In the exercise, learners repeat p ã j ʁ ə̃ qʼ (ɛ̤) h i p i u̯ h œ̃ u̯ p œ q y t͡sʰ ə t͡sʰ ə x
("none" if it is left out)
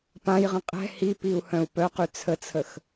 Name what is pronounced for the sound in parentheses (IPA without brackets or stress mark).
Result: ɛ̤